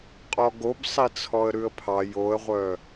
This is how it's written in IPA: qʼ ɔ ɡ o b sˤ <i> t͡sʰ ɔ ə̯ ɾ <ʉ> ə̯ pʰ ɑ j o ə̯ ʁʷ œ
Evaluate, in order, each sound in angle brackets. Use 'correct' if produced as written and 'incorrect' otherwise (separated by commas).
correct, correct